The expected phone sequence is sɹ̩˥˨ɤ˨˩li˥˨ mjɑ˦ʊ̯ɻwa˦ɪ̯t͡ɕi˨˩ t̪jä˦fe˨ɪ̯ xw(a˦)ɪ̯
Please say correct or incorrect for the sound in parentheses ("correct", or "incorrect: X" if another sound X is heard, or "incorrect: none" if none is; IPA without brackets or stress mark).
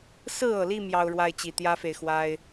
correct